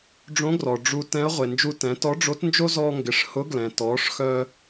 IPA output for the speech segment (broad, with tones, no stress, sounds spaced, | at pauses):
ɖ͡ʐ õ˧˥ ɡ r ɔ˩ ɖ͡ʐ u˧ t ɛ̃˧˥ ɐ̯ ʁʷ e˩ n d͡ʒ u˧ t ɛ̃˩˧ t ɔ˧˥ ɖ͡ʐ o˧˥ t n d͡ʒ o˥ z ɔː˧ ŋ ɡ ɪ˩˧ ʂ h ʊ˧˥ ɡ l ɛ̃˩ t ɔː˩˧ ʂ x œ˧